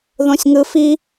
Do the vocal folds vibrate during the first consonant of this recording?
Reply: yes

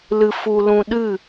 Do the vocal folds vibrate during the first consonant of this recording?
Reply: yes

